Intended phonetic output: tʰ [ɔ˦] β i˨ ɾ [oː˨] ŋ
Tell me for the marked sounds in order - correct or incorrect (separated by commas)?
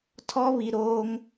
correct, incorrect